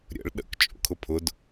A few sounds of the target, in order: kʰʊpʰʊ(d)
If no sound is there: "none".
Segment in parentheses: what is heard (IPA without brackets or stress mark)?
d